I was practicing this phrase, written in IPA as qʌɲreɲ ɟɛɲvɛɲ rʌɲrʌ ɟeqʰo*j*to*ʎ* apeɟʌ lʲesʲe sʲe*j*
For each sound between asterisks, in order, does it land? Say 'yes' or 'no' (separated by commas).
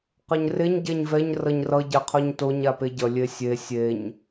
no, no, no